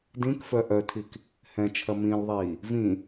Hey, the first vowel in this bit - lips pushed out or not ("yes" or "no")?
no